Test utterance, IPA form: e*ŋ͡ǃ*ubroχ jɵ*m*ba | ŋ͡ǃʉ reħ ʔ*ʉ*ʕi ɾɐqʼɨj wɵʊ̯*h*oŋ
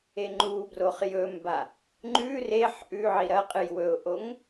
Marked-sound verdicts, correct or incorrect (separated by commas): correct, correct, correct, incorrect